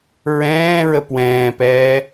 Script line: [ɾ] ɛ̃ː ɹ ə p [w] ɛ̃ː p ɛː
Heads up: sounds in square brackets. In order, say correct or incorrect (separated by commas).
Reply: incorrect, correct